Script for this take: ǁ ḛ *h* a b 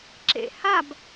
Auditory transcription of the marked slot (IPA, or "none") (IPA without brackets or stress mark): h